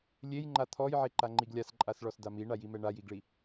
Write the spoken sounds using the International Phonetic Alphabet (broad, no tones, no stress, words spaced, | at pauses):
lʲejŋ͡ǃa t̪ʰɔjʕeǃaŋ͡ǃiɡ lʲasǃʼasɭɔsda miɳajimɛ ɳajiɡɭi